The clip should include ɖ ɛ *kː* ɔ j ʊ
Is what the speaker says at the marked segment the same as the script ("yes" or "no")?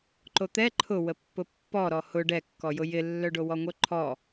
yes